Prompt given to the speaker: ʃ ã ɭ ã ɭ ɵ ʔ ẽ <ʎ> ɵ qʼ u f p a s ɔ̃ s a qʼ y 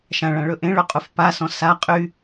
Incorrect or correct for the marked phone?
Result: incorrect: ɭ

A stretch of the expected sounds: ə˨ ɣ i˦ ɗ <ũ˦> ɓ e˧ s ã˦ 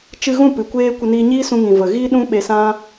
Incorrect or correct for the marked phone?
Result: correct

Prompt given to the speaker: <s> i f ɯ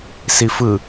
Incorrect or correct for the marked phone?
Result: correct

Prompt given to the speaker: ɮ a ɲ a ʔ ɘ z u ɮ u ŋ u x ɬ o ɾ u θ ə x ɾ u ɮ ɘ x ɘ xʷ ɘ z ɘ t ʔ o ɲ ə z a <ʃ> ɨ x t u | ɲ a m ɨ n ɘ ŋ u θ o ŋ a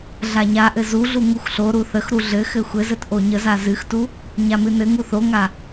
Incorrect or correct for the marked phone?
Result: incorrect: z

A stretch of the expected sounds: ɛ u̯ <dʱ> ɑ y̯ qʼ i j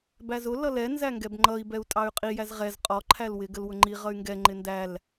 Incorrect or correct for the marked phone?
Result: incorrect: tʼ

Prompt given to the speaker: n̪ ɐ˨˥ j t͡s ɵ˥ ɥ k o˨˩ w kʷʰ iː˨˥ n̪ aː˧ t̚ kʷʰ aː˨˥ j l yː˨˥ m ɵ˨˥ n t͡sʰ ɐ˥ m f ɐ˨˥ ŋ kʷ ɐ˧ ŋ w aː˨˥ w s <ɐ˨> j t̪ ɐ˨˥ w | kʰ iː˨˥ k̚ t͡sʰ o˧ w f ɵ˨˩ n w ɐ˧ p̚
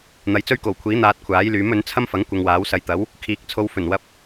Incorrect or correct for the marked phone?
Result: correct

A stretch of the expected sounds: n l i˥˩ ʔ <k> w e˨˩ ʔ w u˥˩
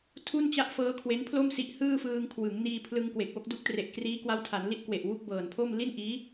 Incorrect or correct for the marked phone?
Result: correct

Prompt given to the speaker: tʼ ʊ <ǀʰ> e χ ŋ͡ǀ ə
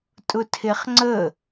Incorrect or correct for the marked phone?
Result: incorrect: tʰ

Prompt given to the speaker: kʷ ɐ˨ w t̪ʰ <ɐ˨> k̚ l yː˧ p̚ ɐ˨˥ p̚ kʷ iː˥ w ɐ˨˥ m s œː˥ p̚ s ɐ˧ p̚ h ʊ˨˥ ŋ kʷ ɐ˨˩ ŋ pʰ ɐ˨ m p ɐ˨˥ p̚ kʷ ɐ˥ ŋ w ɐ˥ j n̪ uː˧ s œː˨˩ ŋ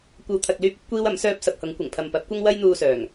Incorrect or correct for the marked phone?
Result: correct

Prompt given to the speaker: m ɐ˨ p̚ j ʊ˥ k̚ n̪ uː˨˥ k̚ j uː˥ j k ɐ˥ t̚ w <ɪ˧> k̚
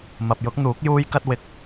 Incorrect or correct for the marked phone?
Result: correct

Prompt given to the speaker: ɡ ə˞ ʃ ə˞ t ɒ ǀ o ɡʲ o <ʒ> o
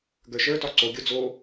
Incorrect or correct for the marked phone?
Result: incorrect: d͡z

